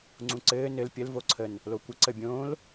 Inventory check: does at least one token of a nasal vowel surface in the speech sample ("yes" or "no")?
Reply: yes